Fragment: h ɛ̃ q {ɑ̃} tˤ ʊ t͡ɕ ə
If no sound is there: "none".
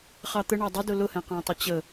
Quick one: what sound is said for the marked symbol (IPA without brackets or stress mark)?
ɑ̃